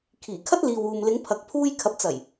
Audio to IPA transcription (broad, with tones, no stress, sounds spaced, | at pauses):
kʰ iː˨˩ kʰ ɐ˥ t̚ l iː˨ w uː˨ m l ɪ˨˧ ŋ pʰ ɐ˨ k̚ pʰ uː˧ j kʰ ɐ˨ p̚ t͡s ɐ˨˩ j